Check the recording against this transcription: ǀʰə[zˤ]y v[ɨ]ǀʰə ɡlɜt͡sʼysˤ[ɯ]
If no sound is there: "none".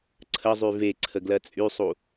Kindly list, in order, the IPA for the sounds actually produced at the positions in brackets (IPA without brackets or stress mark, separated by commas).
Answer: zˤ, e, u